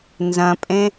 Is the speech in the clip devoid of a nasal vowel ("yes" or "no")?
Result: no